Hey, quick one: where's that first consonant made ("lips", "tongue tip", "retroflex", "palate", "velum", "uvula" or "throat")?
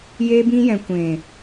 palate